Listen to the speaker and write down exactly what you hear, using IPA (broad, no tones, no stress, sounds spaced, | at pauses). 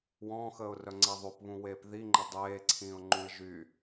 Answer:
w ɔ̃ː x əː ʊ̯ r œ ŋ͡ǀ ɛ ðˤ o p β ũ w eː p ð i ŋ͡ǃ ə dˤ eː ǀʰ ĩː ʊ̯ ŋ͡ǃ ũ ɪ̯ ʒ y